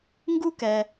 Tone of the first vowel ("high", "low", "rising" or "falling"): high